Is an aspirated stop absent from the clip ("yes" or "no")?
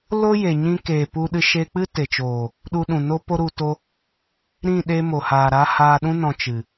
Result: yes